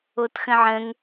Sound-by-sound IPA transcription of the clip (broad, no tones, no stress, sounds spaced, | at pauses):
o t x ə̃ ʕ ə̃ ŋ